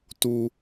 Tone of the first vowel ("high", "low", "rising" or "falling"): high